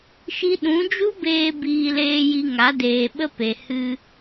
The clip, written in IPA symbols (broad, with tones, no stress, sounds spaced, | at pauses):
ʃ i˧ ɗ ũ˨˦ d͡ʒ u˦ b eː˧ b iː˧ l eː˧ j i˧ ŋ a˨˦ d eː˨ ɓ ə˧ p e˨ h ɨ˧